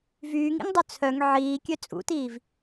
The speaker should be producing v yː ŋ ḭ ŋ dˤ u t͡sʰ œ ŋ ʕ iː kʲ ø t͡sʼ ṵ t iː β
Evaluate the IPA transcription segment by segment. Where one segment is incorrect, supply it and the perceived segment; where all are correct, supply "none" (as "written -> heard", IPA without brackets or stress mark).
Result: β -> v